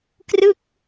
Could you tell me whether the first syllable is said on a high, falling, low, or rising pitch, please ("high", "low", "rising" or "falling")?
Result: falling